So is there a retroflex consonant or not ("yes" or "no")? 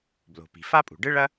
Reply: yes